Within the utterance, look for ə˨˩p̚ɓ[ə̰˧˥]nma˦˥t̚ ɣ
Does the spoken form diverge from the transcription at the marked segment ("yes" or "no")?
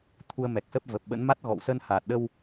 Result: no